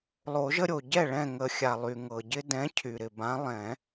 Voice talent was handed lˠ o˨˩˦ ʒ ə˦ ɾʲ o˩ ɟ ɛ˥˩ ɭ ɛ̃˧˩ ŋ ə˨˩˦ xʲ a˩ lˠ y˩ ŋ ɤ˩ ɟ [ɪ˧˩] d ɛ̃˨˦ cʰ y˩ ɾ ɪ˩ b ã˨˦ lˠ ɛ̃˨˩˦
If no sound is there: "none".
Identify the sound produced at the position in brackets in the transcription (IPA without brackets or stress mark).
ɪ˦